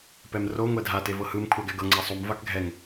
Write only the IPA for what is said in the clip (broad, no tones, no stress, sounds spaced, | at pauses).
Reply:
p ɛ m r o ŋʷ ɛ dʱ a t e v ɤ h ɯ m kʷʰ a ɡ ɛ ɡ ɤ ŋ͡ǀ a sˤ u m v a k ɡʱ ɛ ŋ